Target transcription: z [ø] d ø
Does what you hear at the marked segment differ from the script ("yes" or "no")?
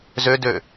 no